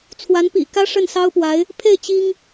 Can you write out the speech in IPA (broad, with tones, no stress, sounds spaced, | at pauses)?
t͡sʰ w a˧˥ n p ḭ˨˩ k ä˥ ʂ ə˥˩ n s ɑ˥ ʊ̯ p w a˧˥ ɪ̯ | pʰ e˥˩ ɪ̯ t͡ɕ i˥ ŋ